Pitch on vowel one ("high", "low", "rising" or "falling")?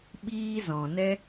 high